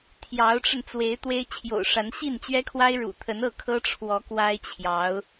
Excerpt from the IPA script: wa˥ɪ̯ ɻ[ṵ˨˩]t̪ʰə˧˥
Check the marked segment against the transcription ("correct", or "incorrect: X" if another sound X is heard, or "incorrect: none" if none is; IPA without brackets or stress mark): correct